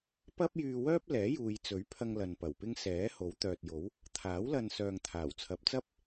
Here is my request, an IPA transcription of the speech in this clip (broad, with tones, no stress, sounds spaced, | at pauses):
p ɐ˥ p̚ j yː˧ w œː˥ p̚ l ɛː˨˥ j uː˨ j t͡s ɵ˨˥ ɥ pʰ ɐ˧ ŋ l ɐ˨ n p ɐ˨˩ w p ɪ˥ ŋ s ɛː˨˥ h o˨˥ w t̪ œː˨ t̚ j o˨˥ w | t̪ʰ aː˨˥ w l ɐ˧ n s œː˨ ŋ t̪ʰ aː˨˩ w t͡sʰ ɐ˨˥ p̚ t͡s ɐ˥ p̚